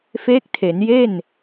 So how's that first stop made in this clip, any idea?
plain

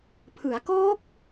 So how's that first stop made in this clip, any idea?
aspirated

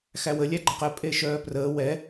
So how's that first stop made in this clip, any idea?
click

